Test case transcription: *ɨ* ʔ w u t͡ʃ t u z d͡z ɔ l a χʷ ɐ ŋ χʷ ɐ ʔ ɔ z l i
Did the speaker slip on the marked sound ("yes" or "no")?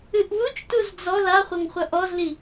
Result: no